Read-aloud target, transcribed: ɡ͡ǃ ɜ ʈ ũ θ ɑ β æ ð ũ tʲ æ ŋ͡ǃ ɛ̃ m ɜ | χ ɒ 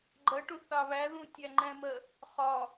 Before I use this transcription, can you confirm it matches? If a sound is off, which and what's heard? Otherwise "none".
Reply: none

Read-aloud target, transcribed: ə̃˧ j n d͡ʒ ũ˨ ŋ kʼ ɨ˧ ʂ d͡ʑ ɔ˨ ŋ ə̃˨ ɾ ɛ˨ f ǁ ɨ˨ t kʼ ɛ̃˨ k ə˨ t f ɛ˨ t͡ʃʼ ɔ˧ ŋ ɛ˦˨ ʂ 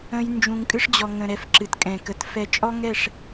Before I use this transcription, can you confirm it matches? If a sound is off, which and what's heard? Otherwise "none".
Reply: none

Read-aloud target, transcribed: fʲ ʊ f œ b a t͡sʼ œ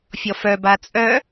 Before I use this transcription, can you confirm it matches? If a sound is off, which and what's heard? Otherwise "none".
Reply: ʊ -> ɔ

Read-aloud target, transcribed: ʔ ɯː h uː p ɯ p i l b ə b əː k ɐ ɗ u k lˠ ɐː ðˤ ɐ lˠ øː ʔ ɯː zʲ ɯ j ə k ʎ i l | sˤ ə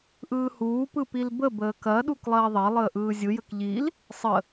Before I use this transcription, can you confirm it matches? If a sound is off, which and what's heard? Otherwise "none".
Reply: øː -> əː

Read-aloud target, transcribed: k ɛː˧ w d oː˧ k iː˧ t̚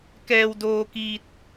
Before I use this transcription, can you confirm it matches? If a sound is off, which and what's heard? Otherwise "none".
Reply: none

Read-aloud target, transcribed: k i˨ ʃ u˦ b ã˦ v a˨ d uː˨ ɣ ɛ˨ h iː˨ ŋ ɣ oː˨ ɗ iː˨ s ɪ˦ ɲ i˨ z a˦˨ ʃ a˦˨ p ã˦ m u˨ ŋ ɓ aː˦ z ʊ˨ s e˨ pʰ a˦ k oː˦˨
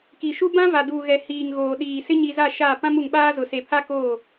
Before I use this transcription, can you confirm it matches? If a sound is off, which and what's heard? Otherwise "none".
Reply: none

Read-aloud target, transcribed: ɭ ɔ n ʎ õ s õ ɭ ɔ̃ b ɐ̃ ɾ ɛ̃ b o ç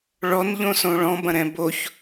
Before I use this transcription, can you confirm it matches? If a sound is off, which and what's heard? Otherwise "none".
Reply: none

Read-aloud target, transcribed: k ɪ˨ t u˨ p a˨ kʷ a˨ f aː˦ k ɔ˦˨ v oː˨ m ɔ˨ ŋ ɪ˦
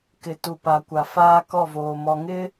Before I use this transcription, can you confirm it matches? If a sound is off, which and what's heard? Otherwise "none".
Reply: none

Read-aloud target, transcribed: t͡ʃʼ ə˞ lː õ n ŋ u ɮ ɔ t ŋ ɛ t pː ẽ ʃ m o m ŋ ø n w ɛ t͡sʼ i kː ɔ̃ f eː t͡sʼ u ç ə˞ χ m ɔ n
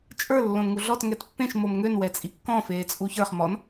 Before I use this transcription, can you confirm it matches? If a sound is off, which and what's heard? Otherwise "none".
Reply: none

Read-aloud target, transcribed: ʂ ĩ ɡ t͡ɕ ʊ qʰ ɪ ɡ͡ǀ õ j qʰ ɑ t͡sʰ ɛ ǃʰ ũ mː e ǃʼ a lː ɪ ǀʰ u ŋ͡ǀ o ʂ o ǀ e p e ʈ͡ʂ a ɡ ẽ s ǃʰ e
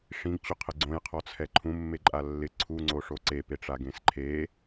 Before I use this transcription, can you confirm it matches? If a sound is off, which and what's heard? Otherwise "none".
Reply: ɑ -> ɔ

